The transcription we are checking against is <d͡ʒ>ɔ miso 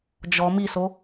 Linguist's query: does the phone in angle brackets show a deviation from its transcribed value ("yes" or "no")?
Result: no